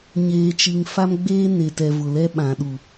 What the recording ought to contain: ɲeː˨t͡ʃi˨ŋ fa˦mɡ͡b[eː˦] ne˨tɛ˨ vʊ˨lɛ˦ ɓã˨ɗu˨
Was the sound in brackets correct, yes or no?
yes